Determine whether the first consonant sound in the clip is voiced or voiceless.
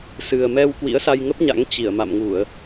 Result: voiceless